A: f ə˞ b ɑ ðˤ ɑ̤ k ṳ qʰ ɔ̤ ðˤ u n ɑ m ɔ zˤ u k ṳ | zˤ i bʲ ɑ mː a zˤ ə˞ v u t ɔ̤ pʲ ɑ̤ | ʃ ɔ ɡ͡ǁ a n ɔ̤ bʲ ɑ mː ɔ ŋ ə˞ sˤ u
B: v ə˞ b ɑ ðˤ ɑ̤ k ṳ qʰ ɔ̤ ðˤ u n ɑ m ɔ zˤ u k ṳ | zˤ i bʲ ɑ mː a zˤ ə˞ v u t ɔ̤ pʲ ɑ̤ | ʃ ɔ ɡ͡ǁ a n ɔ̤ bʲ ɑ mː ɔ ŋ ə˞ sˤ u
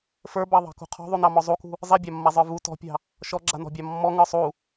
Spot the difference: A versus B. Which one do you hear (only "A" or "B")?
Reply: A